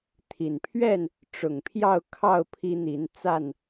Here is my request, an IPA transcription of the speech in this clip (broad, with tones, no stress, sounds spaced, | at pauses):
t̪ʰ i˨˩ n pʰ ɥ ɛ˥˨ n | ʈ͡ʂ ʊ˨˩ ŋ pʰ j ɑ˥˨ ʊ̯ kʰ ɑ˥˨ ʊ̯ pʰ i˦ n̪ i˨˦ n t͡s a˥˨ n